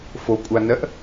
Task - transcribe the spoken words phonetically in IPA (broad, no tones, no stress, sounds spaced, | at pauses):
f o kʷʼ a n ɜ ʔ